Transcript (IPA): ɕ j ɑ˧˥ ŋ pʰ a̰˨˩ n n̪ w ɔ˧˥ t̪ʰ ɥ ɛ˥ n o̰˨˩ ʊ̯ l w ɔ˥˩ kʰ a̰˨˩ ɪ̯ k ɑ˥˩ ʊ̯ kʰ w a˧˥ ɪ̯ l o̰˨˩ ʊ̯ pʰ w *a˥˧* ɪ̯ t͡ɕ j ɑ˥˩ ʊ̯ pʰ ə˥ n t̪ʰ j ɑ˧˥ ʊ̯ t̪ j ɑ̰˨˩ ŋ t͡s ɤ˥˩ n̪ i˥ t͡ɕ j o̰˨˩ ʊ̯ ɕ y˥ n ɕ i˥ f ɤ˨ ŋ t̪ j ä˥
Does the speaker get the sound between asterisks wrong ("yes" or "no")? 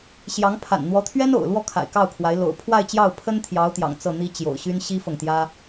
no